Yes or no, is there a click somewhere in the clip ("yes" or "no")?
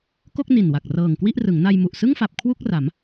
no